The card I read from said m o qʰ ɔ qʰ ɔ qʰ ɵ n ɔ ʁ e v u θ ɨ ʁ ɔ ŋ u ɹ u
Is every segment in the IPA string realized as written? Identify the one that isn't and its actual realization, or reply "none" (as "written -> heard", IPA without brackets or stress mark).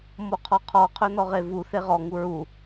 ɨ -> e